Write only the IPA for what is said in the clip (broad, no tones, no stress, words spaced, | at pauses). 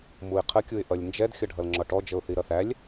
muɪ̯qʰə kʲuɪ̯ʔʌlʲnd͡ʒɛd xʲʌɖʱʌlŋ͡ǁɒʈɔ d͡ʒəʊ̯θiɾʌθælʲ